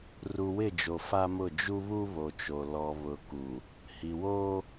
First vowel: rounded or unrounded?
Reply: rounded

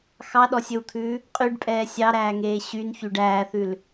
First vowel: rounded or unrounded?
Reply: unrounded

